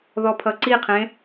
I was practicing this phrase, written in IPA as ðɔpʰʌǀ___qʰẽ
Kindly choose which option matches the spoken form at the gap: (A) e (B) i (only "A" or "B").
B